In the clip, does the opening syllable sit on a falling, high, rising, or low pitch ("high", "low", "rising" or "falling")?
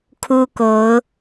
high